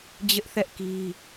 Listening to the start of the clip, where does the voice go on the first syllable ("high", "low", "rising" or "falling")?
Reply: high